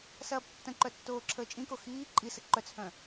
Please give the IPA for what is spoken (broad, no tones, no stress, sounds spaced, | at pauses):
s ɐː b tː ə̃ ǃ œ tː oː ǁʰ əː t͡ʃʼ ĩ k o x iː ǃʼ i s ə ǃ œ t͡s h œ̃